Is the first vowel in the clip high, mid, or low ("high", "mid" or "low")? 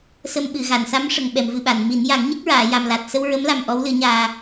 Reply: mid